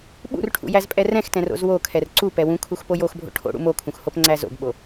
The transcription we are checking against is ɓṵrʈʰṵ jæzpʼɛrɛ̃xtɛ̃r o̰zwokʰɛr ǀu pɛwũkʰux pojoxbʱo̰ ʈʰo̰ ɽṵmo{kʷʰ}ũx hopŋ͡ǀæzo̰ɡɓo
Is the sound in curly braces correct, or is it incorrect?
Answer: incorrect